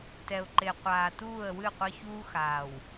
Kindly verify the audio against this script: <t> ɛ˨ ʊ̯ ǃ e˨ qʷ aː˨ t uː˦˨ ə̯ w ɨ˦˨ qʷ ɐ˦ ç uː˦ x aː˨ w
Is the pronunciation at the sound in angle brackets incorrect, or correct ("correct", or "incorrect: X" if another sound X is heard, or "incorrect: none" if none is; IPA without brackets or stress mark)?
correct